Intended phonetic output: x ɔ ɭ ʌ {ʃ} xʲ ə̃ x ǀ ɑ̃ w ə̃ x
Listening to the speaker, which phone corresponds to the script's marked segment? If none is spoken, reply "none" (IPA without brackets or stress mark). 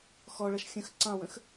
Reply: ʃ